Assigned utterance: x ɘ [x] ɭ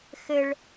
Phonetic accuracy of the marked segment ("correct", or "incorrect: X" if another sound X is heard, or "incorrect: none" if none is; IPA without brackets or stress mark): incorrect: none